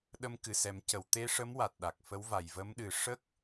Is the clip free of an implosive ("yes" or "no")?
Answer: no